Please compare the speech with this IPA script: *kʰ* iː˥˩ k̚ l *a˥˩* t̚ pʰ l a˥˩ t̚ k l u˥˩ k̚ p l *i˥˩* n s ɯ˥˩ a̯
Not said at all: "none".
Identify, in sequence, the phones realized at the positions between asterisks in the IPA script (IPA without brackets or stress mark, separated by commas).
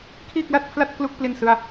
kʰ, a˥˩, i˥˩